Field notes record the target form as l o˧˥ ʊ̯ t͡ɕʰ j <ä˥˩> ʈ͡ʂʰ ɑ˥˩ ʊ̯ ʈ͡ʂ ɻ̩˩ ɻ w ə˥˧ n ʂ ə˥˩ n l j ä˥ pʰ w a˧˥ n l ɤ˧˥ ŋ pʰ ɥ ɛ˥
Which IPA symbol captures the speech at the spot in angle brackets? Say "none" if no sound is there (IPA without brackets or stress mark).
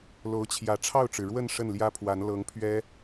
ä˧˥